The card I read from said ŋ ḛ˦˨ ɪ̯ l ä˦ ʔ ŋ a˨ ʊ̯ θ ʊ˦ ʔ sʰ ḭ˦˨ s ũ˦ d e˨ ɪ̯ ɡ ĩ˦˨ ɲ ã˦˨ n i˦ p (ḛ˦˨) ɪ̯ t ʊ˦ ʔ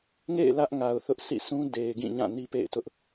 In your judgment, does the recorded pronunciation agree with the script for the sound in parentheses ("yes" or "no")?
yes